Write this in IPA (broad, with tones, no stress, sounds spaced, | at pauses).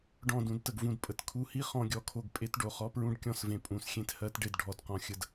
ɖ ɔ̃˦˨ d ũ˧ d t ə˨ ɡ v ũ˧ d pʼ ə˨ t kʰ u˧ h i˦ χ ɔ̃˧ ɡʲ ɔ˨ kʰ o˧ ɡ pʼ e˦ t ɖ o˨ χ ɔ˦ p ɹ ũ˦ ɖ kʲ ɔ̃˧ s v ẽ˨ pʼ ũ˨˦ s xʲ ẽ˧ t h ɜ˨˦ t ɖ e˨ d ɖʱ ɔ˨ d q ɔ̃˨ xʲ ə˨ d